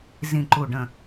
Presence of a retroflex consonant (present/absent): present